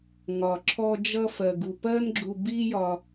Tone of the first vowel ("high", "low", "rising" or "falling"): low